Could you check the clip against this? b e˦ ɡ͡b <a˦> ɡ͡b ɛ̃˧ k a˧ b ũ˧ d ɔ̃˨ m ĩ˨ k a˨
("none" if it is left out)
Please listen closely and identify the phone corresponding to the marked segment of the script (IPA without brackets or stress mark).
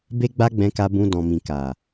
a˦